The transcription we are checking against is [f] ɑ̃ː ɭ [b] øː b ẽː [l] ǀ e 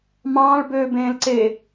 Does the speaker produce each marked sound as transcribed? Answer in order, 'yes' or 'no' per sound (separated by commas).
no, yes, yes